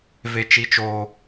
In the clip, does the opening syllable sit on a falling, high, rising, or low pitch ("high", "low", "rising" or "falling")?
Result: high